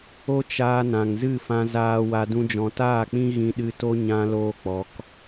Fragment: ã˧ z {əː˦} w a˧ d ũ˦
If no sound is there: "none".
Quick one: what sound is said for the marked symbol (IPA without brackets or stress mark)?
aː˦